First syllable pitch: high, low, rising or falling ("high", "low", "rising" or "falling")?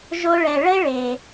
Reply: high